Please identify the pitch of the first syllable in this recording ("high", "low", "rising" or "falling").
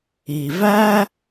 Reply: low